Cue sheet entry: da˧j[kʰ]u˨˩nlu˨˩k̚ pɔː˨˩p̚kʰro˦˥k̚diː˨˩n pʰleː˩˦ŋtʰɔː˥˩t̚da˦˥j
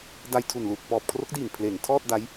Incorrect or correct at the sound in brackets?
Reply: incorrect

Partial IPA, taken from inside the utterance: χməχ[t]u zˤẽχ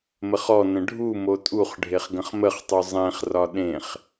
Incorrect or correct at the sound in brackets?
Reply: incorrect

